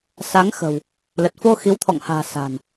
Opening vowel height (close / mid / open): open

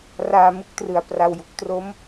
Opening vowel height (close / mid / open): open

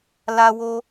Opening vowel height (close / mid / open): open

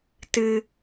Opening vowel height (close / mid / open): close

